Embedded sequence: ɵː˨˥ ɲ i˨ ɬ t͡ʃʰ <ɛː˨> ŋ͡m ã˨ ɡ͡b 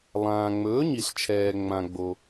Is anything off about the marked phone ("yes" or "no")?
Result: no